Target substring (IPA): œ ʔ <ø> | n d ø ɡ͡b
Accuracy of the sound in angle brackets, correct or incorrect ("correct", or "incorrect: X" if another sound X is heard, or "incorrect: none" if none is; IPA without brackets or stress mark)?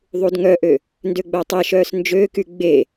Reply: correct